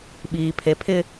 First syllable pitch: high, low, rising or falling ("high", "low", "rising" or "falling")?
low